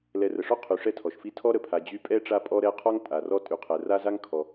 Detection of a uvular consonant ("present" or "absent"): present